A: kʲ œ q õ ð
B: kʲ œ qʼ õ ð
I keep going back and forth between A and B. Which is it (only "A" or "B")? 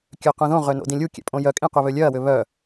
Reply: A